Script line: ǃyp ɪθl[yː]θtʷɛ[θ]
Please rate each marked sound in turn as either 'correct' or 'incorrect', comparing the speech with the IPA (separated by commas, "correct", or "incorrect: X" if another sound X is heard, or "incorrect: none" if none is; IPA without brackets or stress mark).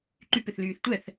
correct, correct